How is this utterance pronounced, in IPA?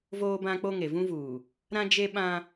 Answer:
v oː˦ b ã˦ k͡p o˦ ŋ e˨ v ũ˦ v uː˨ | ɾ ã˦ d͡ʒ e˦ ɓ ã˦

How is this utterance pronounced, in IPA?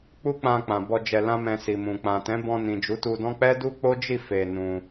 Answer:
k͡p u˦ k͡p ã˧ k͡p ã˨ b ɔ˧ d͡ʒ ɛ˧ l ã˦ m ɛ̃˧ s i˨ m ũ˨ k͡p ã˨ t ɛ̃˨˦ b ɔ̃˧ n ĩ˨ d͡ʒ u˨˦ t u˧ d ɔ̃˦ k͡p ɛ˦ d u˦ k͡p o˦ d͡ʒ i˦˨ f e˧ n ũ˧

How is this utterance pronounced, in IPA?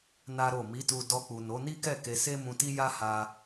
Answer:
n a˦ ɾ o˦˨ m i˨˦ t u˧ d ɔ˧ k͡p u˨ n o˨˦ n i˦ k ɛ˦˨ k e˧ s e˦ m ũ˧ t i˦ j a˦ h a˧

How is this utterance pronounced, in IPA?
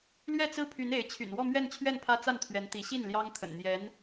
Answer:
l ɥ ɛ˥˩ t͡s ɹ̩˥ pʰ y˧˥ n e˧˥ ɪ̯ t͡ɕʰ y̰˨˩ n w ɔ˥˧ m ɥ ɛ˥˧ n t͡ɕʰ ɥ ɛ˥˩ n pʰ ä˥ t͡s a˥˩ n t̪ʰ ɥ ɛ˧˥ n t̪ i˧˥ ɕ i˥˩ n l j ɑ˥ ŋ t̪ʰ ə̰˨˩ n n̪ j ɛ˧˥ n

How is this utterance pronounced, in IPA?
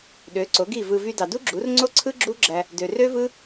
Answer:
ɗ ø˨˦ ǀ o˨˦ ɡ i˦˨ v ɯ˧ v y˧ d ɑ˨ d u˦ ɡ͡ǁ u˨˦ r ŋ͡ǀ o˦ ǀʰ ɯ˦ ɡ͡ǁ u˦ ɡ͡ǁ æ˧ | d ø˨ r ø˦ v ɯ˦

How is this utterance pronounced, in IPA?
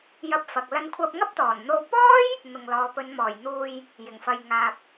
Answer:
j ɐ˧ p̚ f ɐ˨ k̚ l ɐ˧ n kʷʰ ɐ˧ p̚ ŋ ɐ˥ p̚ t̪ ɔː˨˩ n n̪ o˧ w p ɔː˥ j | n̪ ʊ˨ ŋ l ɔː˨˧ p ɵ˨˧ n m ɔː˨˩ j n̪ uː˨ j | j ɪ˨˩ ŋ f ɐ˨ j ŋ aː˨ p̚

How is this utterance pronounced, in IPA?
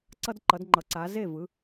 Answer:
ǀ ʌ˦ d ǃ ʌ˨˦ d ŋ͡ǃ ʌ˨˦ ǀ a˨˦ z e˥˨ v ɯ˨˦

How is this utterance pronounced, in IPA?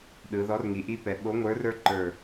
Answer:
ɗ ɯ˩˧ ð ɔ˨˥ r ŋ i˩˧ ʔ i˥ p ɛ˩˧ ɓ o˨˥ ŋʷ ə˞˨˥ r ə˞˥ ǃ ə˞˧˩

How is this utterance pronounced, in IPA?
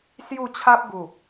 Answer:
s j u˥˧ t͡ɕʰ a˦ p̚ ɡ u˨˩

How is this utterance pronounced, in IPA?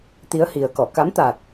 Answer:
t̪ i˨˦ ə̯ h i˨˩ ə̯ k ɔ˧˩ k a˨˦ m t̪ a˨˩ t̚

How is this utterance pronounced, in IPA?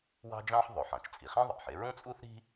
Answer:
w ɑ̤˥ d͡ʒ ɑ̃˥ ħ ðˤ o˩ ħ ɑ̃˩ t͡ʃ t͡sʼ i˩ χ ĩ˥ ðˤ ɑ̰˩ ħ e˥ ɹ ũ˥ t͡sʼ u˥ θ ɾ i̤˥

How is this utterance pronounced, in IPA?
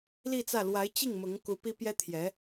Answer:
l i˥˧ t͡s ä˥˩ l w a˧˥ ɪ̯ t͡ɕ i˥˩ ŋ m ʊ˧˥ ŋ k u˧˥ p i˥ p j ɛ˥ t̪ʰ j ɛ˧˥

